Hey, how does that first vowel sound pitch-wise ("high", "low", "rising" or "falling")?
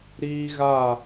high